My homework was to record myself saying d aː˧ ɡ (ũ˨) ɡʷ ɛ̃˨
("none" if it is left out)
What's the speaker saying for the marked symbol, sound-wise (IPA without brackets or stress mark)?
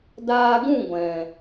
ũ˦˨